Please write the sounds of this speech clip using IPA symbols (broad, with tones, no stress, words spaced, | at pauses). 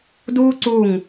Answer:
duː˦ǀuː˧˩ŋ